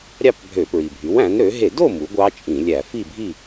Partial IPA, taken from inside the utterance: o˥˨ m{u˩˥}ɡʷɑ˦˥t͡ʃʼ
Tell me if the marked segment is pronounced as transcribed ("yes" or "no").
yes